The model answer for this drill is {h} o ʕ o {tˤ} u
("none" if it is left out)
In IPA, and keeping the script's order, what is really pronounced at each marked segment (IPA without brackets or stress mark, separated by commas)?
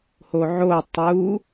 h, tˤ